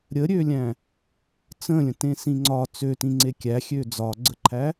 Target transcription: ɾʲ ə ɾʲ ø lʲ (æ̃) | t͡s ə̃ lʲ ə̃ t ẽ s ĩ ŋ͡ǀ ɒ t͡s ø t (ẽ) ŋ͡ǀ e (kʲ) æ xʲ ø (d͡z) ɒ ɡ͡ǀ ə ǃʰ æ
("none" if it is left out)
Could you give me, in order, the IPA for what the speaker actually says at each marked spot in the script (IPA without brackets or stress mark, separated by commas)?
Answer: æ̃, ĩ, kʲ, d͡z